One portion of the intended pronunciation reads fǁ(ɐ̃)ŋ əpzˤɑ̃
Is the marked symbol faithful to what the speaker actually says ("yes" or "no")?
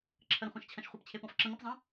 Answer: no